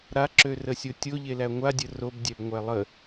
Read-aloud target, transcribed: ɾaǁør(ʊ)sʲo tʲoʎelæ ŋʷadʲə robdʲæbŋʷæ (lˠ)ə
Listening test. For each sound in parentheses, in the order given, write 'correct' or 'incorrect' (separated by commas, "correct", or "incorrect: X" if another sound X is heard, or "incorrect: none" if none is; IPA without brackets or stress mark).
incorrect: ə, correct